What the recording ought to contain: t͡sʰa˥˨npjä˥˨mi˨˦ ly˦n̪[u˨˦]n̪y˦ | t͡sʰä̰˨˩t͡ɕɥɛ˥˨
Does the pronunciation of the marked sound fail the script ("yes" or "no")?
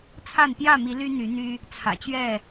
yes